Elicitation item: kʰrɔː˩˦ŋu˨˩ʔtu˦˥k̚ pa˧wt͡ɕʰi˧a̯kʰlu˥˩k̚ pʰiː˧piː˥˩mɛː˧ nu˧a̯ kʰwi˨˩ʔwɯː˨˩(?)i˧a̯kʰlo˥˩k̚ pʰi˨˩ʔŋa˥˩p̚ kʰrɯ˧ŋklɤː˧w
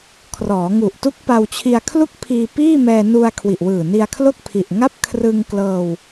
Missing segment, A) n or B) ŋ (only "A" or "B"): A